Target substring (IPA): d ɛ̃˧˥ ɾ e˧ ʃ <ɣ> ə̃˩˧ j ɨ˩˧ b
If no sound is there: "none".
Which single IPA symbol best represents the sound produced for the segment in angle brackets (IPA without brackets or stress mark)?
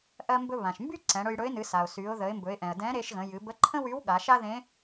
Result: ɣ